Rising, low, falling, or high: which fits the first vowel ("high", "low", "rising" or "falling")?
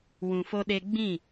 low